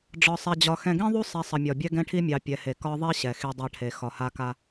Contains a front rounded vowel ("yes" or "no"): no